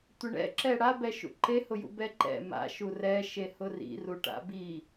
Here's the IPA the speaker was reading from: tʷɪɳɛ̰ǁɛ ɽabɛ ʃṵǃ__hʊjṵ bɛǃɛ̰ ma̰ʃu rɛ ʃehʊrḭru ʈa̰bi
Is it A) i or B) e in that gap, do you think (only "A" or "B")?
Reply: B